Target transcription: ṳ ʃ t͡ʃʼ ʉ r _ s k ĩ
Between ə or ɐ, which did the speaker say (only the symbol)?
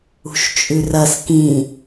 ɐ